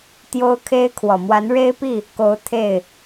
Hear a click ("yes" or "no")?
no